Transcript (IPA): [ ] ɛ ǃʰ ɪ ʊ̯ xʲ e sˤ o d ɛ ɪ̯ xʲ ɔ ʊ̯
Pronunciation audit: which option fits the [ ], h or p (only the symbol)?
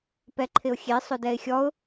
p